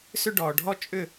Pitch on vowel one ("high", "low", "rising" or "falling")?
high